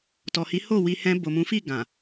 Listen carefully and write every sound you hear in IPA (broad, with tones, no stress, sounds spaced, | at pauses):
t ɔ˨ h i˨˦ h o˦˨ w i˧ h ɛ̃˧ b o˨ m ũ˨˦ f i˦˨ ɡ ã˨